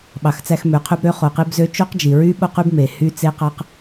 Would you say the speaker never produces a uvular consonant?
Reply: no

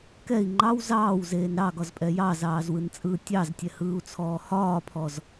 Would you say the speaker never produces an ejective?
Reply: no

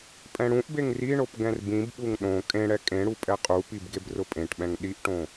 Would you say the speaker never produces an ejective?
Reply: no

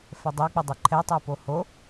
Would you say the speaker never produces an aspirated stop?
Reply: no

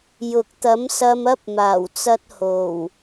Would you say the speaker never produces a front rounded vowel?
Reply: yes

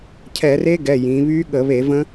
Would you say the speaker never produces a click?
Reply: yes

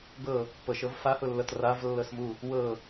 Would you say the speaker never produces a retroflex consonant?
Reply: yes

